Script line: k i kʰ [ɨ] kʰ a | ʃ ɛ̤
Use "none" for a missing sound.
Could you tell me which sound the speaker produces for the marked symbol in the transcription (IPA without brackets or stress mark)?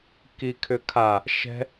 ʏ